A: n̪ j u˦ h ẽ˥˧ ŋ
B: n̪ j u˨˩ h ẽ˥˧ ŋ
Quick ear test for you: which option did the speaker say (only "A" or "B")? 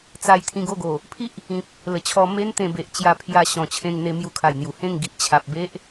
B